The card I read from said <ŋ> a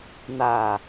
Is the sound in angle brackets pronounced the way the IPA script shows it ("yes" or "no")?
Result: no